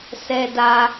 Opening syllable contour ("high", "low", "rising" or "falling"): high